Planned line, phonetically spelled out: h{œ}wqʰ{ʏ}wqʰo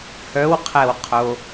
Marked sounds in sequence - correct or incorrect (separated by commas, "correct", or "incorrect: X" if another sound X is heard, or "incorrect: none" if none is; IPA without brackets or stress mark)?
correct, incorrect: ɛ